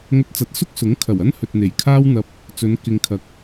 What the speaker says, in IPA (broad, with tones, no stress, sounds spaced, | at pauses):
ŋ ɵ˧ t̚ t͡s ɐ˨˥ t̚ s ʊ˥ k̚ s ʊ˨˥ ŋ kʰ ɐ˨˩ w ɐ˥ n h ɵ˨ t̚ n̪ e˨˩ j kʰ aː˥ w n̪ ɐ˧ p̚ | t͡s ɵ˨˧ n k ɪ˨ ŋ kʰ ɐ˨˥ k̚